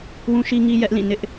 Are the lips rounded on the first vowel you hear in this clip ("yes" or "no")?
yes